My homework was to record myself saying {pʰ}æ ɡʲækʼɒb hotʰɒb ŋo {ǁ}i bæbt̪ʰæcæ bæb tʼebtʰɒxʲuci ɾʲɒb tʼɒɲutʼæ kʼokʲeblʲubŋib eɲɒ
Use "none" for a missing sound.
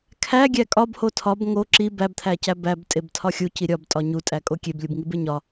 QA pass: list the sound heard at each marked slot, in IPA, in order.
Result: kʰ, ǁ

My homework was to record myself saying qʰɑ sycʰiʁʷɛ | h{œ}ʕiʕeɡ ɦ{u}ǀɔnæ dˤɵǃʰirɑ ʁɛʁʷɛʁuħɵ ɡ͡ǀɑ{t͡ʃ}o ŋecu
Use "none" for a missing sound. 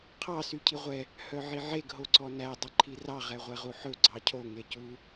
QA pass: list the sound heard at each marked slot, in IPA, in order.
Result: œ, o, cʰ

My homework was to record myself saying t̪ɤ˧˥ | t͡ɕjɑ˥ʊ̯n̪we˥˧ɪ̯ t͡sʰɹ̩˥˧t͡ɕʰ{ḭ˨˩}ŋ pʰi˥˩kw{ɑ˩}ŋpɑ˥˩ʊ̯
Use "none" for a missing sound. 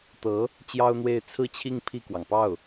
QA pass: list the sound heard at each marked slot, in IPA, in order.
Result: i˥˧, ɑ˩

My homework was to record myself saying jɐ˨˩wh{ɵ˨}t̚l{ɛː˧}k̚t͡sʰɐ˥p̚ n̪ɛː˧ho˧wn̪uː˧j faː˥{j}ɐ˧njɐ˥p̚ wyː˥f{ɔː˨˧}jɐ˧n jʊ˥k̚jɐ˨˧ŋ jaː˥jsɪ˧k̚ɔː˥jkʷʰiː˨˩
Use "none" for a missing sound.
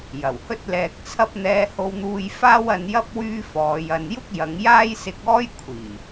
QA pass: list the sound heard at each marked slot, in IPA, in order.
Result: ɵ˥, ɛː˧, w, ɔː˨˧

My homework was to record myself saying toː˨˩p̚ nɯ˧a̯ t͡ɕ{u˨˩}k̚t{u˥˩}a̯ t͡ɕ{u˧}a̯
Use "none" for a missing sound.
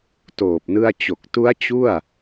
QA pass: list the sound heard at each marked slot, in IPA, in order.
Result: o˨˩, u˦˥, u˥˩

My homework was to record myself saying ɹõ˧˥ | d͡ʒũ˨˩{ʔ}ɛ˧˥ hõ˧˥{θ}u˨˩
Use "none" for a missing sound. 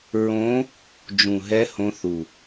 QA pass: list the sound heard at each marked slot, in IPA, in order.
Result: ɦ, θ

